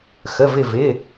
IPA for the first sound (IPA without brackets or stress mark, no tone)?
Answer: x